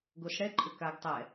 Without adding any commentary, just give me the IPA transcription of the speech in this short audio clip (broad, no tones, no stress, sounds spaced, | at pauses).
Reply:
ɡ o s ɽ ɛ ǃʼ ʏ k a ɡ tˤ ɛ